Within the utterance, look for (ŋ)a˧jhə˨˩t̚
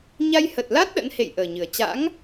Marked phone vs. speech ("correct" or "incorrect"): incorrect